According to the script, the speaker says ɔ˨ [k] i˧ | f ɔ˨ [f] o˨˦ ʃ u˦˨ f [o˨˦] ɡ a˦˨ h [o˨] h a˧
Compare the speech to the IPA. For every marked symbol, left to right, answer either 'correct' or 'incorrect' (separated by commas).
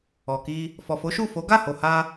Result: correct, correct, correct, correct